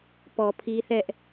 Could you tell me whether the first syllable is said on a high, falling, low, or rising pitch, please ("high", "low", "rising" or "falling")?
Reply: low